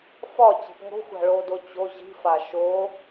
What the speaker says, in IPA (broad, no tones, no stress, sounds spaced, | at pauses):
f ɒ t͡ɕ i̤ p ŋ o̤ xʷ a̤ ɭ o d o t͡ɕ o ʑ i̤ f a ʃ o